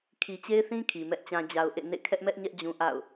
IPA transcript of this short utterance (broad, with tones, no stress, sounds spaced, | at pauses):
kʰ i˨ t͡ɕ e˦ ɪ̯ θ ĩ˦ kʰ i˨ m ɛ˦ ʔ t͡ɕ ã˦ d͡ʑ a˦ ʊ̯ ʔ ḛ˦˨ n ḛ˦˨ kʰ ɛ˦ ʔ m ɛ˦ ʔ ɲ ɛ˦ ʔ d͡ʑ ũ˦ ʔ a̰˦˨ ʊ̯